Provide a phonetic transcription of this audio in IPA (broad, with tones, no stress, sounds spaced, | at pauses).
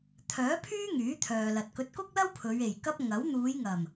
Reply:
t̪ʰ œː˨˥ pʰ yː˥ ŋ yː˨˥ t̪ʰ œː˨ l ɐ˨ t̚ k ɵ˨˥ t̚ k ʊ˥ k̚ l ɐ˥ w pʰ ɵ˨˧ ɥ e˨˩ j k ɐ˥ p̚ ŋ ɐ˨˥ w n̪ uː˨˧ j ŋ ɐ˨˩ m